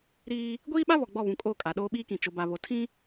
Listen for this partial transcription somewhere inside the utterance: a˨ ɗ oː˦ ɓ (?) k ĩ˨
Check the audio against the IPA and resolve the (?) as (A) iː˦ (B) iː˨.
A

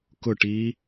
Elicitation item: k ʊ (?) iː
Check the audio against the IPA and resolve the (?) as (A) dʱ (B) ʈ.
B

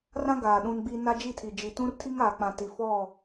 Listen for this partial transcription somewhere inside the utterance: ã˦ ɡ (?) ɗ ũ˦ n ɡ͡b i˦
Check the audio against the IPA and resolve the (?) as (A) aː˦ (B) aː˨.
B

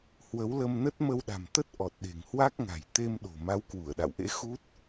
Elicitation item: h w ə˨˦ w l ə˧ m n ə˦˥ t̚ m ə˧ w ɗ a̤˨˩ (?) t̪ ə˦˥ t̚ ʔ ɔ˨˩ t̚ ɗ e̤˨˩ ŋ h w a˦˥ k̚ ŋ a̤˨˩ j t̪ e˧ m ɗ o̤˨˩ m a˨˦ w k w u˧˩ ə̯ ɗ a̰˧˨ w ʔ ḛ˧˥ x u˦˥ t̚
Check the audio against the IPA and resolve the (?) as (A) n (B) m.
B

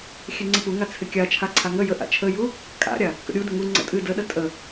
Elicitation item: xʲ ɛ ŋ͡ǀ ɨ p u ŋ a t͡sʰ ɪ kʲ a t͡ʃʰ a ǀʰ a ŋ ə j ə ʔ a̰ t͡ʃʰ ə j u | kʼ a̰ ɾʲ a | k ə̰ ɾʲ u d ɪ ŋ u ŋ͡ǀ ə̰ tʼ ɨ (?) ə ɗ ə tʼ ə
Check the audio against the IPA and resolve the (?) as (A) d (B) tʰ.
A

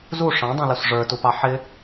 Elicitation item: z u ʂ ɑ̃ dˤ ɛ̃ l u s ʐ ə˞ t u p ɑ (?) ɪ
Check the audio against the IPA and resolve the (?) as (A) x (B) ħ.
B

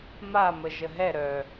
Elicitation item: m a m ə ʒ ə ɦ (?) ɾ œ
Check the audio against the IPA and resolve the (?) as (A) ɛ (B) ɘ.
A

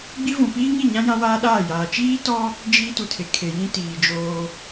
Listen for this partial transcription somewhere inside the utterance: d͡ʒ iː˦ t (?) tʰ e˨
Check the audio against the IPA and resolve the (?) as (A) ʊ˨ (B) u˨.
B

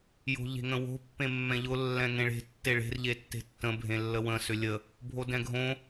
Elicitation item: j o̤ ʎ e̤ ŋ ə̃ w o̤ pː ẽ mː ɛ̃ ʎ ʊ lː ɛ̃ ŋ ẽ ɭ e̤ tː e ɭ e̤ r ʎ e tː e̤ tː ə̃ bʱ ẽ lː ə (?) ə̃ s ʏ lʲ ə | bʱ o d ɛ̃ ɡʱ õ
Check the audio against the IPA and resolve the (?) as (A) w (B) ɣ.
A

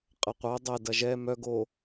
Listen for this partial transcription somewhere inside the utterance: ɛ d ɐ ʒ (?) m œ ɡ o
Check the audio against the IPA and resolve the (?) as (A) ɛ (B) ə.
A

